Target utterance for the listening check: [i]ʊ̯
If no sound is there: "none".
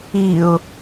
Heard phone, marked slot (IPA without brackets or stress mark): i